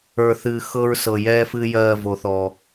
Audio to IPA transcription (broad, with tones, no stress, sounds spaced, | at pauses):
ə˞˨ θ ɨː˨ x ɤ˦ ɹ s ɤ˨ j ɛː˦ f ɨː˦ j ɜː˦˨ v o˨ θ ɔː˨